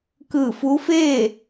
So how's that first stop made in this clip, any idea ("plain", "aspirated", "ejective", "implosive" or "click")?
plain